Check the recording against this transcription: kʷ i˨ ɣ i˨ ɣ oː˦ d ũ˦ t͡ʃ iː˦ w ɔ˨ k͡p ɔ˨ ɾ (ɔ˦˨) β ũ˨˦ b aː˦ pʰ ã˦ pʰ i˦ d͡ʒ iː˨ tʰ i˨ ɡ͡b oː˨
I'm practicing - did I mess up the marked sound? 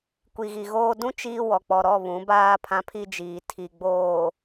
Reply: no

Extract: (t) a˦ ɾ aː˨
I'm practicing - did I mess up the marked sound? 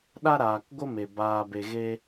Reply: yes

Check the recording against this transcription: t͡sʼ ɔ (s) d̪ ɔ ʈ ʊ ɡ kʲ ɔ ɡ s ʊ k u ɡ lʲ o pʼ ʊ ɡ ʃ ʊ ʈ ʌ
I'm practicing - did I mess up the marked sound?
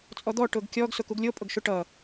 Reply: yes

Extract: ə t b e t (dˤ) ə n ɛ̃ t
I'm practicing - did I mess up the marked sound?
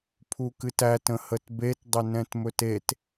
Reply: no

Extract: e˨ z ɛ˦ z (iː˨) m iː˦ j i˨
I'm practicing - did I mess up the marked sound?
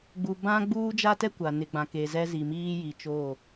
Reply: yes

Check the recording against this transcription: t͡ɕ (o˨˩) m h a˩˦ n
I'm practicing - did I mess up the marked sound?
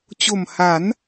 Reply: no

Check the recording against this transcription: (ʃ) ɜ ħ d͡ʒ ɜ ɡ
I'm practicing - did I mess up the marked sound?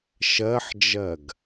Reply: no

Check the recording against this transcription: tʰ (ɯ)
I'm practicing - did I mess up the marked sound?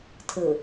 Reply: no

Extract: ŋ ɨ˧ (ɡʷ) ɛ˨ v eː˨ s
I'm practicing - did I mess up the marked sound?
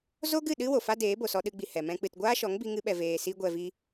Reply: yes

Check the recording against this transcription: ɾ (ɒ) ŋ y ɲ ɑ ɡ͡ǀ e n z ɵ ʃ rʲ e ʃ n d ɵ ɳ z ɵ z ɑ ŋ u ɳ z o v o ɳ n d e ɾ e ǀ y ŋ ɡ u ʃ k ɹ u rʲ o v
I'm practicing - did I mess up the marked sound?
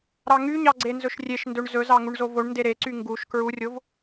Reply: yes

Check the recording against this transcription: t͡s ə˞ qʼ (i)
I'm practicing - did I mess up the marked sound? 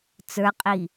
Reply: no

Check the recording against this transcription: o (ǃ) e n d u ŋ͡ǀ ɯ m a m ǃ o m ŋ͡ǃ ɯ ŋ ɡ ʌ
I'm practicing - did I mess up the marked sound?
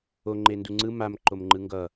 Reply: yes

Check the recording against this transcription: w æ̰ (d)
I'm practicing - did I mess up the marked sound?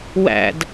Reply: no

